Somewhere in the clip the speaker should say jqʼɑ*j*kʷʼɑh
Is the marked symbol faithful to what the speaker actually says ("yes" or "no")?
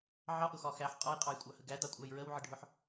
yes